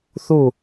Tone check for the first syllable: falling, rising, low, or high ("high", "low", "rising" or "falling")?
falling